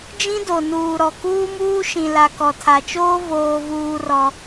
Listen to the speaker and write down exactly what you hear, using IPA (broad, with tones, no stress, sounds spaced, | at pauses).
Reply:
d͡ʒ ĩ˦ d o˨ n uː˨ ɾ ɔ˨ k uː˦ m uː˦ ʃ ĩ˨ l a˨ k ɔ˨ tʰ a˨ t͡ʃ oː˦ v oː˦ v uː˦ r ɔ˦